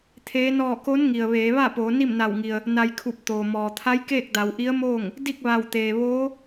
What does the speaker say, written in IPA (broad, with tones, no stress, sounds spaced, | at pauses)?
t̪ʰ eː˧˥ n ɔː˥˨ k o˧˥ n ŋ i˩ ə̯ ʋ eː˩˧ ʋ a˥˨ p oː˩˧ n i˥˨ m n a˧˩ w ŋ i˩ ə̯ | n a˧ j kʰ u˧˩ p̚ t̪ oː˩ m ɔː˩ t̪ʰ a˧˥ j k eː˥˨ k̚ d a˩˧ w ʔ i˧˥ ə̯ m oː˥˨ ŋ | d i˥˨ k̚ ʋ a˧˩ w t̪ eː˩ ʋ oː˧˥